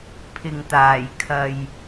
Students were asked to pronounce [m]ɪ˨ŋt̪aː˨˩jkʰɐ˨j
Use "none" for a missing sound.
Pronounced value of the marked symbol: pʰ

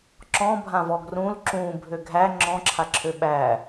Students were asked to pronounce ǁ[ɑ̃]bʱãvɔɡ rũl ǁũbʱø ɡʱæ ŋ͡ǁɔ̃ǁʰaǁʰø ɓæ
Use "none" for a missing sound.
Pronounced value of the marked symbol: ɔ̃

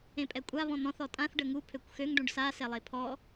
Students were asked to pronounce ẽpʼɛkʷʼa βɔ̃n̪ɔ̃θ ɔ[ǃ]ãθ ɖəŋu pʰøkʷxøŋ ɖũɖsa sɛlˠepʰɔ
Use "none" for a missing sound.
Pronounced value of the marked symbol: tʼ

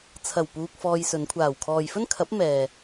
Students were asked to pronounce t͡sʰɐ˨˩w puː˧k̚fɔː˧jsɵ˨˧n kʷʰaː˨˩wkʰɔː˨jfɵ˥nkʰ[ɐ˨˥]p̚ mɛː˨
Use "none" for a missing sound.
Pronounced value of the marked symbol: ɐ˨˥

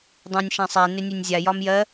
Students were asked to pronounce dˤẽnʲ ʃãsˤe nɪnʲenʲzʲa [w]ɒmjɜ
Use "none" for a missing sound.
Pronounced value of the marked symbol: j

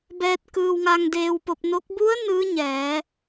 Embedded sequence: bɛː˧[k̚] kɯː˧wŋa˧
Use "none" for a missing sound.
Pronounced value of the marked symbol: t̚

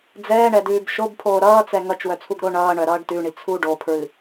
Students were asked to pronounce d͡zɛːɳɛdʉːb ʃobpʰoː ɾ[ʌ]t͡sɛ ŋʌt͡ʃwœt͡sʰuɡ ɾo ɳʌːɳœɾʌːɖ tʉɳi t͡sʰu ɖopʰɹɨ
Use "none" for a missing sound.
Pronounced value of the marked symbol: ʌː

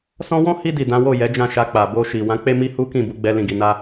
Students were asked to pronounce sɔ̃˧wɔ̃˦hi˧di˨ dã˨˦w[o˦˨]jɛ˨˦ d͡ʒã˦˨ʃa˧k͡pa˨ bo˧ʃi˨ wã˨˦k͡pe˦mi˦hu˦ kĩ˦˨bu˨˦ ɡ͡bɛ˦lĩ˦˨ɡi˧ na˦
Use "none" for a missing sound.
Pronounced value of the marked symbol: o˦˨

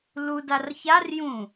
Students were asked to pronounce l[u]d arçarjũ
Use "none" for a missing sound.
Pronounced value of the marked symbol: u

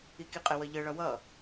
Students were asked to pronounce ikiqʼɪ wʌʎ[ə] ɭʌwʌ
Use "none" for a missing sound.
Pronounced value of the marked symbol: ə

